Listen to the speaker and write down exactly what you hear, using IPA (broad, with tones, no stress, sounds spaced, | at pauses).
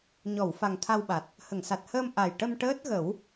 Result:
ɲ ɔ˨˩˨ w f a˨˩ ŋ t̪ʰ a˧ w ɓ a˨˩ t̚ | h ə˨˩˨ ŋ s a˨˩ t̚ h əː˧ m ʔ a˨˩ j ʈ ə˧ m ʈ əː˦˥ t̚ ɣ ə˨˩˦ w